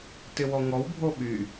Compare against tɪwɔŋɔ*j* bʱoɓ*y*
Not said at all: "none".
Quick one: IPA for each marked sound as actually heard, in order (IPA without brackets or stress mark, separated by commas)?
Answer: w, y